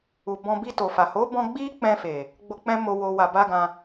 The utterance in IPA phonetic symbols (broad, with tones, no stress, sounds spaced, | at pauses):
u˨ b ɔ̃˧ b i˧ t o˨ f a˨ h o˨˦ b ɔ̃˧ ɡ͡b i˦ k͡p ɛ̃˧ f e˨ | ɡ͡b o˧ k͡p ɛ̃˦ m o˧ w o˧ w a˧ b a˦ ɡ ã˧